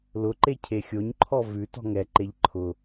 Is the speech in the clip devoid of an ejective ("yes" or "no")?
yes